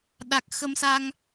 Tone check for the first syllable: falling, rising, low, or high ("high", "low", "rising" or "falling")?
low